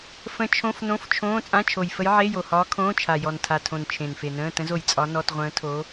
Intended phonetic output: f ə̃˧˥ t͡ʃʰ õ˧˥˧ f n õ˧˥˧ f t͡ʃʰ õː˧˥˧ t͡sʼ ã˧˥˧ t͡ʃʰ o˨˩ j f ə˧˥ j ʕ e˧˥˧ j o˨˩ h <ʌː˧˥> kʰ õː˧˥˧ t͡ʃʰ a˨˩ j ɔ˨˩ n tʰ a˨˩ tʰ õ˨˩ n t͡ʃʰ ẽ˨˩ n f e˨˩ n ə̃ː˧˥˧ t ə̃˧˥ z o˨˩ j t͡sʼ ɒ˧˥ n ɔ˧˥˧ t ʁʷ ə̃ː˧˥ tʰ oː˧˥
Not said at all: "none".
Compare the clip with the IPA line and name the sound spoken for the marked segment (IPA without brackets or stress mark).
ɒː˧˥